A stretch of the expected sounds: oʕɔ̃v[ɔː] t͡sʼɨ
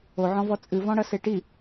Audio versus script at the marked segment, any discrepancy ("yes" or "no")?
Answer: yes